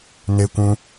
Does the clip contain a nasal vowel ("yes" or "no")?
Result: yes